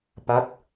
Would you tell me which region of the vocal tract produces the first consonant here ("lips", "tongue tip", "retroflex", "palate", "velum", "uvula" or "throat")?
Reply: lips